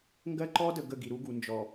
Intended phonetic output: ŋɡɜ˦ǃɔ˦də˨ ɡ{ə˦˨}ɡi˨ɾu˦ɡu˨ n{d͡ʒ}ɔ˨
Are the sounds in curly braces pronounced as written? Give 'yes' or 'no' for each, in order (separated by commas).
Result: yes, yes